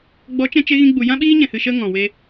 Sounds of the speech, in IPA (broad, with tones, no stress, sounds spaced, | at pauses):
ɡ͡b ɔ˨˦ t͡ʃ ɛ̃˧ t͡ʃ e˧ ɣ ĩ˧ ɡ͡b u˨ j ã˦ ɓ iː˦ ɲ ɛ̃˨ h ɨ˨ ʃ ə˧ ŋ ɔ̃˨ w e˧